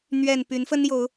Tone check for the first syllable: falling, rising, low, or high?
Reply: low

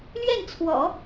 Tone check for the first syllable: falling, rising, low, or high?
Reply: falling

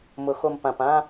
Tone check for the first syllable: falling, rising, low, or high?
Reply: low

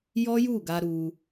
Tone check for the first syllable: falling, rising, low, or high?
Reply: high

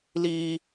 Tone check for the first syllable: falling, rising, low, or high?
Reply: high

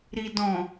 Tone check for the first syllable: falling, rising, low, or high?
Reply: low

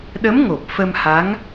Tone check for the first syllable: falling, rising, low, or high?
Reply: rising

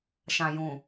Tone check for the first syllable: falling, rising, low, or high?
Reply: low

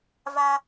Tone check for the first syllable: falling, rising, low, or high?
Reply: high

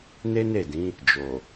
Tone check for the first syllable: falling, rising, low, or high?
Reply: high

